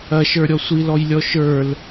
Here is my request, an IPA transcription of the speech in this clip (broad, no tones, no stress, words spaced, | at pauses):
ɐʃə˞ɾʲɔ sʷilɔjlʲɔ ʃə˞l